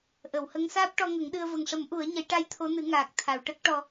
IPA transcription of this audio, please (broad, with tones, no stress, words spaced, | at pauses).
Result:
ʔə˨˩˨whə˧˥ŋ saː˦˥p̚ʈɔ˧ŋə˨˩˦ŋɗɨ˧ə̯ və˨˩ŋʂə˨˩˦m ʔu˨˩˦ə̯ɲə˨˩˦jʈa˧j t̪ʰo˧˥nɨ˨˩˦ŋaː˨˩k̚ t̪ʰa˨˩˨wʈə˦˥k̚ʈɔ˧